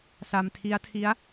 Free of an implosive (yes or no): yes